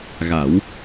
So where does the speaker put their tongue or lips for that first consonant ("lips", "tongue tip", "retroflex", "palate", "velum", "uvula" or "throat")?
velum